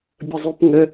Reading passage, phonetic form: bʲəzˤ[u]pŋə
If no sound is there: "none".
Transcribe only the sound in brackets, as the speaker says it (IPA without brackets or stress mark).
u